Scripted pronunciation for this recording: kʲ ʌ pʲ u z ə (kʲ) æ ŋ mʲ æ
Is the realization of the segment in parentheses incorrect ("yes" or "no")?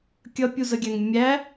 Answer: yes